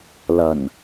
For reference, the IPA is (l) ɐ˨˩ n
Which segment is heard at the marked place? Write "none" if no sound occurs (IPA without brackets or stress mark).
l